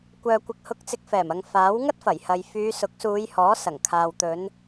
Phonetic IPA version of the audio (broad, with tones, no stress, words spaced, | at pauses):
kʷœː˨kʷɪ˨k̚hʊ˧k̚t͡sɪ˧k̚ fɛː˨˩mɐ˨ŋ faː˨˥w ŋɐ˥t̚fɐ˨˩jhɐ˨j fyː˨˧sʊ˨˥k̚suː˨˧j hɔː˨˥sɐ˨˩ŋkʰaː˨wt̪ɵ˨˧n